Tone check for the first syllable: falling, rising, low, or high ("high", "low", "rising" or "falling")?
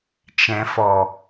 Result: low